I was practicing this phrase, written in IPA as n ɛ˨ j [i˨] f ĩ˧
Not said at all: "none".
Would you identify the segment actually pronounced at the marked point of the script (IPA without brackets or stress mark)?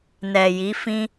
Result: i˨˦